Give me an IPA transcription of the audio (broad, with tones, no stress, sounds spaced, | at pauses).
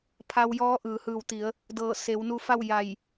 pʰ a˧ w j ɔː˧˥ ʔ ɯː˩˧ h ɯː˧˩ w t̪ i˩˧ ə̯ | d ɤː˧˩ s e˩˧ w n u˧ f a˥˨ w j a˧˩ j